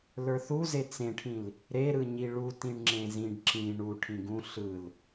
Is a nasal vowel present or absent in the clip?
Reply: present